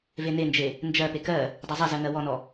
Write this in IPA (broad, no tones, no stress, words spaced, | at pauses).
venend͡ʒe | nd͡ʒɜpe kɜ | dˤezˤɜzɜ ŋɜwɔnɔ